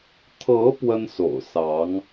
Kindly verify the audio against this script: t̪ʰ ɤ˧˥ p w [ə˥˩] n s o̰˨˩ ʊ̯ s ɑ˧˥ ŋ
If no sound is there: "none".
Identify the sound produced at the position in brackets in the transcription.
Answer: ə˥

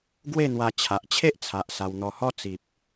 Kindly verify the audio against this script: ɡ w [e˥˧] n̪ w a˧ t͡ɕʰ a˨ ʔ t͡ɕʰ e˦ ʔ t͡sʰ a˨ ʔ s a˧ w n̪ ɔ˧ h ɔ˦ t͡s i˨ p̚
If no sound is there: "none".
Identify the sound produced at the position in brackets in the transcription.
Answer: e˥˧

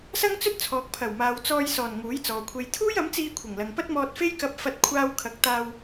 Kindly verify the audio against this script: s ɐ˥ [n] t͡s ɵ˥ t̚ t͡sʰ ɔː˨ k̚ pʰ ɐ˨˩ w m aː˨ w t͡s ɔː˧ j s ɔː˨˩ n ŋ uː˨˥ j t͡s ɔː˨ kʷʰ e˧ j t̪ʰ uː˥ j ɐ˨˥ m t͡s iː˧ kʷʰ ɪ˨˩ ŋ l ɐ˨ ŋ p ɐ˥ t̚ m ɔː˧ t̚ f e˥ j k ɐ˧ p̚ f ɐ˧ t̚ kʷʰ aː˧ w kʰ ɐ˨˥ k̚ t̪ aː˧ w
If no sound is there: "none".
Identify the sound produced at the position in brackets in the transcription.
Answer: ŋ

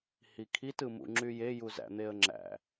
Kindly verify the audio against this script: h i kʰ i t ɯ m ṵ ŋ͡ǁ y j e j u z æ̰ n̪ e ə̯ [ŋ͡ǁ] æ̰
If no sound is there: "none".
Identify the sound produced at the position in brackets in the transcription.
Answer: ŋ͡ǁ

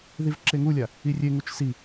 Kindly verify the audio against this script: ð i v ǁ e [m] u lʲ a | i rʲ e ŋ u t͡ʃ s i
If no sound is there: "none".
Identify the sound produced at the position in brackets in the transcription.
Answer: ŋ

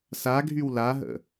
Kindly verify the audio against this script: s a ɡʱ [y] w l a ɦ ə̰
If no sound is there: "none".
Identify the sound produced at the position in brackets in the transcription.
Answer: y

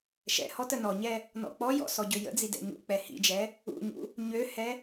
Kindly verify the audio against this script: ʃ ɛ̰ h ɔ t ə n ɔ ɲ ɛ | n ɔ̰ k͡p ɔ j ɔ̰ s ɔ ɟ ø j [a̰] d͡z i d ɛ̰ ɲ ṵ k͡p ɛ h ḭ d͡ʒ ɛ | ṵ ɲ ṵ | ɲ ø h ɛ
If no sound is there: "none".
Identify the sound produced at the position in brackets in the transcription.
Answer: ə̰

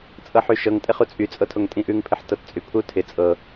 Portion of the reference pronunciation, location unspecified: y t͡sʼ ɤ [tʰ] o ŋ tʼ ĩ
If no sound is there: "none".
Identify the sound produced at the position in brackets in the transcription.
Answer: tʰ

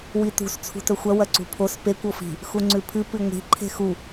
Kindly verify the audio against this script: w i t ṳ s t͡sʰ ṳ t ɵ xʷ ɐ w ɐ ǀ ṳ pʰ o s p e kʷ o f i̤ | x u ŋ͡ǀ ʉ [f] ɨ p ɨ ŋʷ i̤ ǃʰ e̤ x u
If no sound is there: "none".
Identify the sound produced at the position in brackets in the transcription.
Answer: pʰ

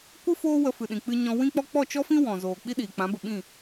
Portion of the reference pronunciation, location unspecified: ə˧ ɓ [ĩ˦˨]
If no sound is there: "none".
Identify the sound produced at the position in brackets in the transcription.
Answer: ĩ˦˨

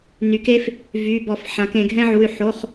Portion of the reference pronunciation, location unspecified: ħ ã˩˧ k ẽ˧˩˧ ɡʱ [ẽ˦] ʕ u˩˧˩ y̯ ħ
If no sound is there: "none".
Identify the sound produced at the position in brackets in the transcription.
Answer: ɛ̃˦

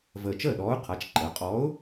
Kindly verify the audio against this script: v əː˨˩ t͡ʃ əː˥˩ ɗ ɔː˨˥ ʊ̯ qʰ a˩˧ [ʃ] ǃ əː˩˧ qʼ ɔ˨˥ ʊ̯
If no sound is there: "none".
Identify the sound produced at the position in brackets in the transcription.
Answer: t͡ʃ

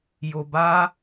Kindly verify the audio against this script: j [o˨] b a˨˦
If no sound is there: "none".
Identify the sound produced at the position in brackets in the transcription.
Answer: o˨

